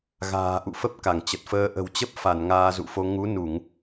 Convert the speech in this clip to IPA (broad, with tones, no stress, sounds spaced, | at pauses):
ɣ a̤ː˨˩ ʔ ṵ˧˨ f ə˦˥ p̚ k a˧˩ ŋ t͡ɕ ə˨˩ t̚ f əː˧ ʔ ə̤˨˩ w t͡ɕ ə˦˥ p̚ f a˧˩ n ŋ aː˧ z ṵ˧˨ f o˧ ŋ u˨˦ n u˧˩˨ ŋ